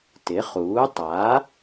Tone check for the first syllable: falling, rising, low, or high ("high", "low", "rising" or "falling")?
rising